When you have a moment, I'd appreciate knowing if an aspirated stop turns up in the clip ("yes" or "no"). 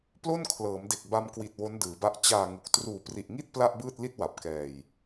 yes